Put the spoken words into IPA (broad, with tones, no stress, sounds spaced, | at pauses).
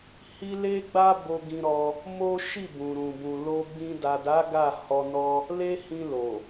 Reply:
h i˦ l e˦ ɡ͡b a˦ b o˧ ɡ ĩ˧ ɾ ɔ˧ | m o˦ ʃ i˦˨ b ũ˨ ɾ ũ˨ b ũ˨ l o˧ ɡ͡b ĩ˧ d a˨ d a˨˦ ɡ a˦˨ h ɔ˧ n ɔ˦ | l e˦ h ĩ˧ l o˨